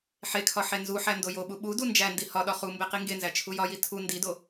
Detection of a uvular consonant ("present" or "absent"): present